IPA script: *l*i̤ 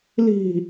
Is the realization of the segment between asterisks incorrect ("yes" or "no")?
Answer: no